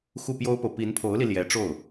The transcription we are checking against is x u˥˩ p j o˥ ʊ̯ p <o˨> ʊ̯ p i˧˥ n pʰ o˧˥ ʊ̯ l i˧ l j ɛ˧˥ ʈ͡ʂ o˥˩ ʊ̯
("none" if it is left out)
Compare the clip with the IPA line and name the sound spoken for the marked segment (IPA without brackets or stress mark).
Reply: o˨